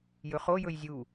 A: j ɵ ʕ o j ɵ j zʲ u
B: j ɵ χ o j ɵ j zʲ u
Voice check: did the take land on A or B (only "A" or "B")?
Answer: B